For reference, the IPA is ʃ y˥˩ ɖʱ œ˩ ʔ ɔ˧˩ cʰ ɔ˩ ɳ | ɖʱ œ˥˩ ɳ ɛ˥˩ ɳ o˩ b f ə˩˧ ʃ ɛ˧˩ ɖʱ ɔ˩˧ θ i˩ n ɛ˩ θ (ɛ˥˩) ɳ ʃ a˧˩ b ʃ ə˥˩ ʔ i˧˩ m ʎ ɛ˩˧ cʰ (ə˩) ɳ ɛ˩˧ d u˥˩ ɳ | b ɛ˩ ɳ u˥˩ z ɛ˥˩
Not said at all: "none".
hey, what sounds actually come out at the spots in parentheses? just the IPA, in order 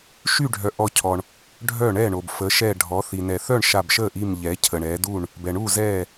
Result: œ˥˩, ə˩

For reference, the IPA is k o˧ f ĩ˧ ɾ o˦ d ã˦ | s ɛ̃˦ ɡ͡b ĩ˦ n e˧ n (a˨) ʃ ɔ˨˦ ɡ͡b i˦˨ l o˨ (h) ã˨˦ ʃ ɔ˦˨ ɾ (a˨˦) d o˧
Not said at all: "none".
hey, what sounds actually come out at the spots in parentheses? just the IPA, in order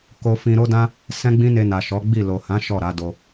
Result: a˨, h, a˨˦

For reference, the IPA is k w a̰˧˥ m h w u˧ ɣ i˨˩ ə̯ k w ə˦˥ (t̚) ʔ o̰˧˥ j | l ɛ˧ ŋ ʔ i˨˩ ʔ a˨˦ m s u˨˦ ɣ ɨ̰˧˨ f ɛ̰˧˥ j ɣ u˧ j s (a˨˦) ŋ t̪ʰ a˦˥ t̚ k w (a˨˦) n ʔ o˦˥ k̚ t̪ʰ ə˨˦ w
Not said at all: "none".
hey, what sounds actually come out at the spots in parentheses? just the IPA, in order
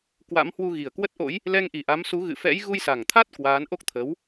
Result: t̚, a˨˩, aː˨˦

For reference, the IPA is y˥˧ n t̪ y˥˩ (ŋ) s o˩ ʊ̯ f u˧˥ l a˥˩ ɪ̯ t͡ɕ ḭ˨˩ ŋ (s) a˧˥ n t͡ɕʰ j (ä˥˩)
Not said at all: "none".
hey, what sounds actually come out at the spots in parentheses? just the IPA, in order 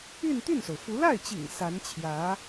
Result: n, s, ä˧˥

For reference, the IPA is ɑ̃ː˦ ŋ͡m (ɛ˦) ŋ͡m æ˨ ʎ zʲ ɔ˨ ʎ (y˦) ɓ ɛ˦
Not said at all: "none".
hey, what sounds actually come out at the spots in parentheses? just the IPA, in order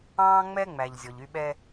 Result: ɛ˦, y˦

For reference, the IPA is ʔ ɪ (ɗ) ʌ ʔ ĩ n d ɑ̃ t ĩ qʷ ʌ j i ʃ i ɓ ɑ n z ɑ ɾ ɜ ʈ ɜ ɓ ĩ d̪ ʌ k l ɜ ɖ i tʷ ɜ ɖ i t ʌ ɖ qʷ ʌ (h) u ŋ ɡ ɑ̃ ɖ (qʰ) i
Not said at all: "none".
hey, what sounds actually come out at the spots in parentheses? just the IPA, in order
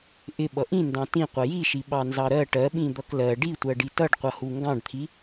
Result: ɓ, h, t̪ʰ

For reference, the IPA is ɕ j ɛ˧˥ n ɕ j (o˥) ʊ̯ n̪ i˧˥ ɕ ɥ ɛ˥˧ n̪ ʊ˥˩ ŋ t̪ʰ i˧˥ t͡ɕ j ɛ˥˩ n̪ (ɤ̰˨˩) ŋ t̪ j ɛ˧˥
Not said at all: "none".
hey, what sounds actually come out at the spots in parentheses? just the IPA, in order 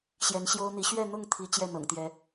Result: o˥, ɤ̰˨˩

